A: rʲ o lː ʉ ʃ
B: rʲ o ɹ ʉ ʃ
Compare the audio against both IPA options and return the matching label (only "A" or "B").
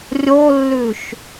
A